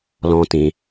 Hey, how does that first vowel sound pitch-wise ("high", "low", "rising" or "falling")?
high